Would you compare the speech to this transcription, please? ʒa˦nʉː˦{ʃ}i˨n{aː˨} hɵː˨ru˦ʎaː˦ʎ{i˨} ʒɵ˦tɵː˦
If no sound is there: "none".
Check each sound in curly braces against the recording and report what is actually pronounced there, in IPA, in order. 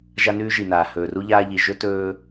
ʒ, aː˨, i˨

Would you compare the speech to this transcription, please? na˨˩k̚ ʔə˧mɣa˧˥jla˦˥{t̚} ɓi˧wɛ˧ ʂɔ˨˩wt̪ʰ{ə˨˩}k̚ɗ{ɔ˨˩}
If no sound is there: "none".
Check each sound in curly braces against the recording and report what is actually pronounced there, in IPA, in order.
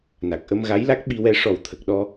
k̚, ə˨˩, ɔ˧

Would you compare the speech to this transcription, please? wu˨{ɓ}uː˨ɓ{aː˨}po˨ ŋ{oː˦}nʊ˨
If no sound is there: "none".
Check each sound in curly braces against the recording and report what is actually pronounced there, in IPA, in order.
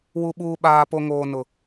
ɓ, aː˨, oː˨

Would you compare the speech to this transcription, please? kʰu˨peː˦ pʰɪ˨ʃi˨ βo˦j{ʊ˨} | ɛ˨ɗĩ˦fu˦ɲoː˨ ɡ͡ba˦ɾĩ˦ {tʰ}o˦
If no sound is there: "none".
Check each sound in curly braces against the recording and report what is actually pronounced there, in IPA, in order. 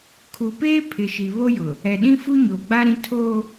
ʊ˨, tʰ

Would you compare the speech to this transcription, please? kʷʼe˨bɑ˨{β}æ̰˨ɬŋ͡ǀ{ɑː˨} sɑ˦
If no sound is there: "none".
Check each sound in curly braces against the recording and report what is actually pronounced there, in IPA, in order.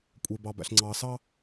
b, ɑː˨

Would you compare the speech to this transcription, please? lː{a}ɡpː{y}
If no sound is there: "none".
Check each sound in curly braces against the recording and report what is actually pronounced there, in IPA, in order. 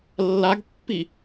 a, i

